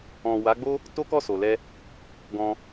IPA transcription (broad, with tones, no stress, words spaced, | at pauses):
ɔ̃˨ wa˨˦ɡ͡bo˦ | to˦ kɔ˦˨so˨lɛ˧ | ɡɔ̃˧